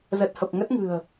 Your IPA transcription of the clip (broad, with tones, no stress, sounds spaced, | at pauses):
z ə˨˩ t̚ h ə˨˩ p̚ ŋ ə˦˥ t̚ ŋ ɨ̤˨˩ ə̯